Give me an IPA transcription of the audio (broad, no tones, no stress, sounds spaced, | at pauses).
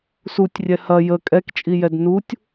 s u tʲ rʲ ɛ h ɐ j ə kʼ ɛ k t͡ʃʼ i j ɛ d n u tʲ